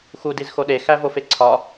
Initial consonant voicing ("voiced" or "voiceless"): voiceless